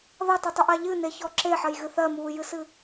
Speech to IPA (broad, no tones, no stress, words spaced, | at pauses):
ðɐtˤɨtˤoʔa ʎɨneçɔ ǁeħɐjɣɨ θɜmuːjɨsɨ